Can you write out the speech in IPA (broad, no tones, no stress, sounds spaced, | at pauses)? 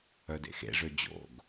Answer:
œ d ḛ x ḛ ʐ ø d͡ʑ o̰ ɡ